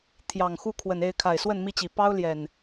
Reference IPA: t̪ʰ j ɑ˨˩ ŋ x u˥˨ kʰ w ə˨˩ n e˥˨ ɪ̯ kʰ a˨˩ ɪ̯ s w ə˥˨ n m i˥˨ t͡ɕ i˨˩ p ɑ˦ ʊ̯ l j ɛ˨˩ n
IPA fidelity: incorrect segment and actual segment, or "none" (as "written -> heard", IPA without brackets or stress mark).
none